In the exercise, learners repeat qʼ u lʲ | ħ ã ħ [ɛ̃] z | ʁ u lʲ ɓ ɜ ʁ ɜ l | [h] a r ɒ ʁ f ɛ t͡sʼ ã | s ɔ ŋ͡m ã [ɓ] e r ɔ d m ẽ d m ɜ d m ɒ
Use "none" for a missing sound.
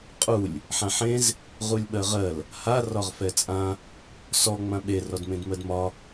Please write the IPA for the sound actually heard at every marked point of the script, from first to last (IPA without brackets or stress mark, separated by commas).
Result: ẽ, h, ɓ